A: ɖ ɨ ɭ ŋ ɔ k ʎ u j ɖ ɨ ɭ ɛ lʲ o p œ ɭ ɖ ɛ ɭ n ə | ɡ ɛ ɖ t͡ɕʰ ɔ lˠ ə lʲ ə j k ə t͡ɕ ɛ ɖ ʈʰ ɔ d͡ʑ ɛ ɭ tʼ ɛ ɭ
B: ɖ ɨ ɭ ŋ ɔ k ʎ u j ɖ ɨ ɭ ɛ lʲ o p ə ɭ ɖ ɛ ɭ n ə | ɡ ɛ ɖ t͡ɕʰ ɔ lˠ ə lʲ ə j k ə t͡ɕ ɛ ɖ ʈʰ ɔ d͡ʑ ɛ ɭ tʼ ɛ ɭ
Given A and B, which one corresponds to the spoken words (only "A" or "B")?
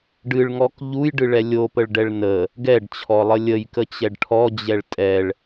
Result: B